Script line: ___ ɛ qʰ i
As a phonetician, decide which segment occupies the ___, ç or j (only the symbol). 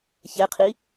ç